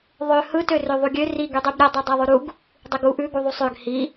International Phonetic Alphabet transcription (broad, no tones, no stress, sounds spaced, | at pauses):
ðˤ ø h ɯ t ø r ø ðˤ u ɡʲ ø r i ɡ y dˤ y b ɾʲ ɛ dˤ ø dˤ ɛ ðˤ ʉ ɾ u ɡ | dˤ i ɡ u ʔ ʉ ɡ u ðˤ u sˤ ø ɡ h i